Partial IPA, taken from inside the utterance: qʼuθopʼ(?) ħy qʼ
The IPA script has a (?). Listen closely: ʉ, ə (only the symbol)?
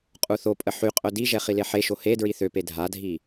ə